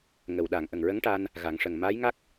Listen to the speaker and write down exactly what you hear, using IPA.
ŋ ə˨˩˨ w ɗ a˨˩˨ ŋ ʔ ə˨˩ ŋ ɹ ə˧˥ ŋ ʈ a˧ n | ɣ a˨˩˦ ŋ ʂ ə˨˩ ŋ m aː˧˥ j ŋ a˦˥ k̚

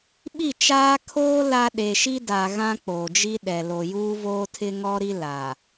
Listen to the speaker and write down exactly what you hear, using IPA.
ɓ i˦˨ t͡ʃ aː˦ kʰ oː˦ l a˦ ɗ e˨ ʃ i˦ d a˨ ɣ ã˦ k͡p oː˨ d͡ʒ i˦ ɗ ɛ˨ l o˨ j uː˦ v oː˦ tʰ ɪ˦ ŋ ɔ˦ ɾ i˦ l a˨

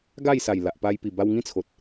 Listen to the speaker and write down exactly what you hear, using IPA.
ɡ a˥˧ j s a˨˩ j l a˨ ʔ p a˧ j p i˨˩ b a˧ w ŋ ĩ˦ t͡sʰ o˨ t̚

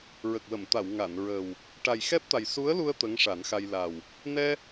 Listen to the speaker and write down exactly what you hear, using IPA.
ɹ ə˨˩ k̚ w ə˨˩˨ m t̪ a˨˩˨ w ŋ a˨˩˨ n ɹ ə˨˩ w | ʈ a˨˩ j x ɛ˦˥ p̚ t̪ a˨˩ j s u˧˥ ə̯ l u˧ ə̯ t̪ ə˧˥ ŋ ʂ a˨˩˦ n x a˧ j l a˨˩ w | n ɛ˧

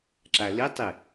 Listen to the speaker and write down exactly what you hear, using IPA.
ǁ a l i tˤ i

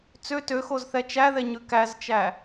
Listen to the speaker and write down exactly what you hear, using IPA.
t͡s ø t ø x o z θ ɛ t͡ʃ æ ð ɛ ɲ ʉ k æ z t͡ʃ æ

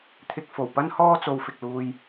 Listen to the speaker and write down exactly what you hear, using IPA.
t̪ʰ ɪ˧ k̚ f o˨˩ w p ɐ˥ n h ɔː˥ t͡s o˧ w f ɪ˨ k̚ l uː˧ j

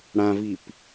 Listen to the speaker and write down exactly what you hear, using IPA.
ɽ ã v i p

